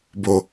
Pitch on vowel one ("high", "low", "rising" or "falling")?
low